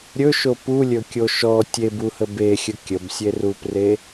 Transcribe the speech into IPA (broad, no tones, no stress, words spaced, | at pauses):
ɾʲɵʃo pulʲɵkʲo ʃɔ tʲebuhə bexʲə kʲəbsʲerupre